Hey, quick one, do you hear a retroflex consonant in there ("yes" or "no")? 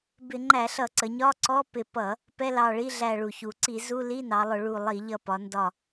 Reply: yes